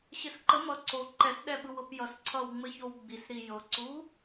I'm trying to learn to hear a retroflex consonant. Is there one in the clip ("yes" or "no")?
no